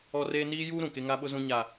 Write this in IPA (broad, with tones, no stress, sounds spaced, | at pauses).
ɔ˦ r eː˦ n iː˦ j uː˦ ɾ ũ˨ k e˦ ŋ a˦ ɓ ʊ˦ z ũ˦ ɲ a˦